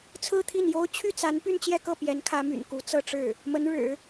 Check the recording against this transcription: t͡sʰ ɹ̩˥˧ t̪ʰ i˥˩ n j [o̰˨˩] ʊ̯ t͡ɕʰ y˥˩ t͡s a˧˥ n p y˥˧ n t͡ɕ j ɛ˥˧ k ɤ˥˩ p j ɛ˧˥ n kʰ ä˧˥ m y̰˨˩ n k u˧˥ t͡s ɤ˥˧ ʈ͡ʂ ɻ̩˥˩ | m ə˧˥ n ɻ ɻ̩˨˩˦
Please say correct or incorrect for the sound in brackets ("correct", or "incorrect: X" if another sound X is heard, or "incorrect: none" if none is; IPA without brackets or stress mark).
incorrect: o˥